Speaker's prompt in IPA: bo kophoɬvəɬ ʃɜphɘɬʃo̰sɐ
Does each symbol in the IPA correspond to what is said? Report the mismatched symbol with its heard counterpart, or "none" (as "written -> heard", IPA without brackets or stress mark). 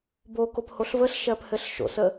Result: ɐ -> ə